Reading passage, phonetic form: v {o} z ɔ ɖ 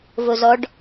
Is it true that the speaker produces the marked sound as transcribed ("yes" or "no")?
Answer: yes